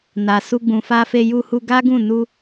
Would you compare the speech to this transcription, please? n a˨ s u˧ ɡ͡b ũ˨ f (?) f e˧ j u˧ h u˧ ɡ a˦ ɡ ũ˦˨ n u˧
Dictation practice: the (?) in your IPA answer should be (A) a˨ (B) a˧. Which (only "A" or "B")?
B